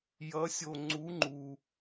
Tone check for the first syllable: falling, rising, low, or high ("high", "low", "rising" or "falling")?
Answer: rising